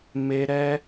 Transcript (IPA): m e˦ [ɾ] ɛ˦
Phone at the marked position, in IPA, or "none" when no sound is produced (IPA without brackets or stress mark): ɾ